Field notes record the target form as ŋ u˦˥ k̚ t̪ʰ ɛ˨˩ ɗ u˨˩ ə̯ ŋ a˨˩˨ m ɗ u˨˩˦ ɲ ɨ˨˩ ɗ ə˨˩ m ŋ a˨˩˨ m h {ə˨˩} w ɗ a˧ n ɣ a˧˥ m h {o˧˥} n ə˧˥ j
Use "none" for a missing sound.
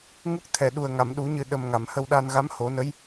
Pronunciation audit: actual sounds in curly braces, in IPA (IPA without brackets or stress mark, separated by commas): ə˧, o˨˩˦